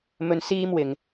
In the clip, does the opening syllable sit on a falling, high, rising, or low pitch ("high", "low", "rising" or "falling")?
high